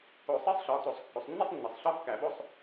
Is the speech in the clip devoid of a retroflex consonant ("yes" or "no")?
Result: yes